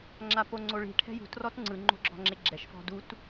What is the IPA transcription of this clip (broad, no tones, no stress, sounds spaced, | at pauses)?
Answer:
ŋ͡ǁ a p o ŋ͡ǀ o ɭ i̤ ʈʰ ɛ̤ j ṳ t r ɔ t ŋ͡ǀ ɯ ŋ͡ǃ o̤ ɡ͡ǁ ɔ̤ ŋ͡ǁ e ɡ͡ǁ ɛ ʃ f ɔ̤ d u t